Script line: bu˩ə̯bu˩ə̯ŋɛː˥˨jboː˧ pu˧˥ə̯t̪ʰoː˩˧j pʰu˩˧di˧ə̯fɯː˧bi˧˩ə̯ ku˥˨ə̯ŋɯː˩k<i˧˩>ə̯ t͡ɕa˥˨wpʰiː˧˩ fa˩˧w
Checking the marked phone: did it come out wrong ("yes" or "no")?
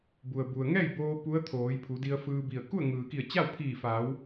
no